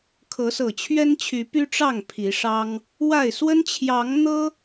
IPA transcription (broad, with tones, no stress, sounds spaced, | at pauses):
kʰ ɤ˨˦ s ɤ˨˩ t͡ɕʰ ɥ ɛ˦ n t͡ɕʰ y˨˦ p y˦ ʈ͡ʂ ɑ˥˨ ŋ pʰ i˨˦ ʂ ɑ˦ ŋ | w a˥˨ ɪ̯ s w ə˦ n t͡ɕʰ j ɑ˨˦ ŋ n̪ ɤ˦